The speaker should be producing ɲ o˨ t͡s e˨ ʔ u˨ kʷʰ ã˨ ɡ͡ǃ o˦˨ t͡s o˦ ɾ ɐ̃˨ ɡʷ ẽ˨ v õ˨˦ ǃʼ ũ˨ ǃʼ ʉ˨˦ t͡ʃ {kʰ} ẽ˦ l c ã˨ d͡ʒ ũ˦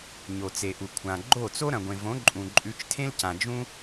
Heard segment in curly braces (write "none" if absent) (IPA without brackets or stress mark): tʰ